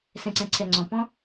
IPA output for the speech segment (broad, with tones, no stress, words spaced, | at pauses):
sɛ̃˨ǀɛ̃˨ ǀʰɛ˨ŋ͡ǀɔ̃˨ pɔ̃˦